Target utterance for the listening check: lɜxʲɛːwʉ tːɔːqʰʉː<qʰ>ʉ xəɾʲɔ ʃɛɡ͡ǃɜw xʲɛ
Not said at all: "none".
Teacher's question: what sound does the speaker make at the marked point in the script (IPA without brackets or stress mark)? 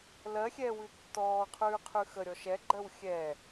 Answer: qʰ